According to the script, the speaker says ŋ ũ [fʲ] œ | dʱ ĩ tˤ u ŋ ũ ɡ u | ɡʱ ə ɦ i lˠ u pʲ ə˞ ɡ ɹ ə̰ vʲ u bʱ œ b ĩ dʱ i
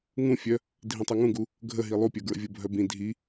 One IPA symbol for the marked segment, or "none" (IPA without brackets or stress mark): fʲ